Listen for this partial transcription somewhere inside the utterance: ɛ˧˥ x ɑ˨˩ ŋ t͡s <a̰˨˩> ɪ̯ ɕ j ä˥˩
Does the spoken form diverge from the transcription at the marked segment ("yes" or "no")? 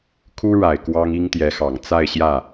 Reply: yes